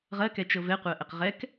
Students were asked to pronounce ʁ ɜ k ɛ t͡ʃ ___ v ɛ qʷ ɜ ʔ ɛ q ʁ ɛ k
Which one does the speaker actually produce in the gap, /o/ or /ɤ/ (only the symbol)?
ɤ